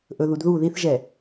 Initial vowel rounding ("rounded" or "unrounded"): rounded